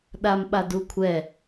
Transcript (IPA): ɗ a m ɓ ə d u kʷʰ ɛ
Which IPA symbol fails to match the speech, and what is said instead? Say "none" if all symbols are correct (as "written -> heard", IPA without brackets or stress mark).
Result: ə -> a